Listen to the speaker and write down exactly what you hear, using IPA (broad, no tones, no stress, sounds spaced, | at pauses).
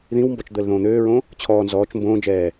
ð ĩ w m b ɔ t͡ʃ d̪ əː l ð õː n̪ øː ɹ õ | t͡ɕʰ ɔː n z ɔː t͡ʃ m b õː d͡ʒ ɛː